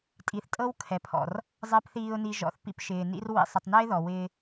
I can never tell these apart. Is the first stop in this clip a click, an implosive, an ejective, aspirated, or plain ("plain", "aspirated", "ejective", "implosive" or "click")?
ejective